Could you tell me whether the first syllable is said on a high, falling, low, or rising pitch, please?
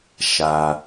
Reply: low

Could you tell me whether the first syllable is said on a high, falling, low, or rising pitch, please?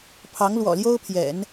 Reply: rising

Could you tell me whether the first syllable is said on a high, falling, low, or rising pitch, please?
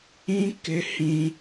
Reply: high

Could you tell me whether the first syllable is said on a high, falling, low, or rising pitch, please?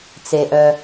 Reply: low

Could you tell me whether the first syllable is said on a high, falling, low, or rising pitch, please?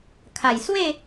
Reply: low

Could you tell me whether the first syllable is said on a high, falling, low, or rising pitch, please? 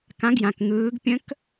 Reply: rising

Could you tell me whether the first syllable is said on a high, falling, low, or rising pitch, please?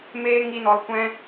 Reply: high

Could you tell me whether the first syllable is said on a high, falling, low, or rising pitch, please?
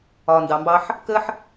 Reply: low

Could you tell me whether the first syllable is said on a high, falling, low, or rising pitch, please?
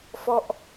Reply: falling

